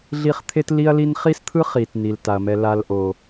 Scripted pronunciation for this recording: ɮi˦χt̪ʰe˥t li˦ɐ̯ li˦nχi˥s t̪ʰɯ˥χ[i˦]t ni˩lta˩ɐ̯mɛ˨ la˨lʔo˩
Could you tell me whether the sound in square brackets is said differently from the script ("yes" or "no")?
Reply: yes